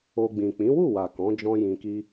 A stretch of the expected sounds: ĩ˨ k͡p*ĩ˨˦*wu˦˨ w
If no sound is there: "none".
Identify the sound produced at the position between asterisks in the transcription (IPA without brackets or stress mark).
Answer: ĩ˨˦